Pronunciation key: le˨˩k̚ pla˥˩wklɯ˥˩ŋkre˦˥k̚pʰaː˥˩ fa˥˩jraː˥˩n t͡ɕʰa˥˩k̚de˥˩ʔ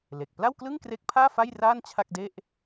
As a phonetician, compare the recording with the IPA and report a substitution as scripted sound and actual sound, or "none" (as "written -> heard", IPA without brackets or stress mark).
none